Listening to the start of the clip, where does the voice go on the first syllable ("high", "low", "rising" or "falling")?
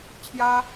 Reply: high